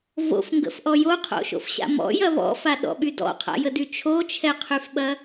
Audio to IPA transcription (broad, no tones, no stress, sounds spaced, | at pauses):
v o̰ f ŋ ɡ ə̰ f ʔ ɔ j o qʰ o̰ ʃ o̰ f ɕ a̰ m ɔ̰ j ɐ β ɔ̰ f a ɗ ɔ̰ ɓ y d ɔ̰ qʰ a̰ j ə d y t͡ʃʰ o t͡ʃʰ ɛ qʰ y f ɓ ɐ